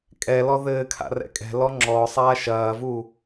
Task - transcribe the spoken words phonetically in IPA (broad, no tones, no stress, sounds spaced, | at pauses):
kʼ ɛ l ɔ ð ɘː kʰ a̰ r ɛ̰ kʼ ɛ̤ l ɔ ŋ͡ǁ ɔ sˤ aː ʃ ɐː v u